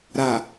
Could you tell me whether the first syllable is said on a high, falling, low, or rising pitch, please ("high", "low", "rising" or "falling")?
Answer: low